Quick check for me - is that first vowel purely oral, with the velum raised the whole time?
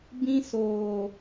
no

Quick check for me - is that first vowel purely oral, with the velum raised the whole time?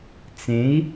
no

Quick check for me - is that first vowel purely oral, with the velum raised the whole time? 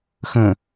no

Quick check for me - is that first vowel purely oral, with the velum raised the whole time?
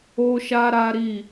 yes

